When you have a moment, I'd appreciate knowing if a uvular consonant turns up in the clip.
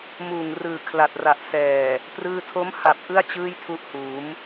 no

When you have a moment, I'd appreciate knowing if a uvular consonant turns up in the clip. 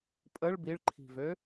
no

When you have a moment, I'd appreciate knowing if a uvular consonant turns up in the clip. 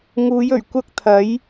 no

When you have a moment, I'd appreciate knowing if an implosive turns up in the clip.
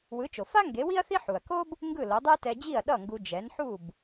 yes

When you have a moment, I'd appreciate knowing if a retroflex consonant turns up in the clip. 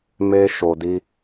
no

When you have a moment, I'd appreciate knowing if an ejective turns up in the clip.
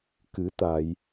no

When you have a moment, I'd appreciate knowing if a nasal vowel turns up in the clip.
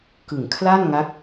no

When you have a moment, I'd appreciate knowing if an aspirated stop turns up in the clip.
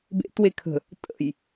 yes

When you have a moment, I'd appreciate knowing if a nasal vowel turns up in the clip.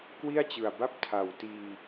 no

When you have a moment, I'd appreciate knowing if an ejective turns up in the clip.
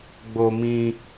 no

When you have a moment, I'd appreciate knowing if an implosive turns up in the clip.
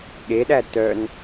yes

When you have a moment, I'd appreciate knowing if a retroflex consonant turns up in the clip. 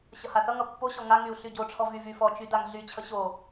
yes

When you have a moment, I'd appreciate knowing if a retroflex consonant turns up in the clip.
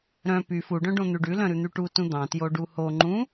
yes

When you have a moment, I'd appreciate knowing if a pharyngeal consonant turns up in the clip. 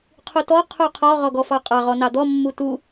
no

